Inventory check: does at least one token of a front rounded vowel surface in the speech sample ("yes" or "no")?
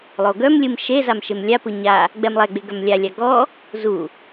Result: yes